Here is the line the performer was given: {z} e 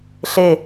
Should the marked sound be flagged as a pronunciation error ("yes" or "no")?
yes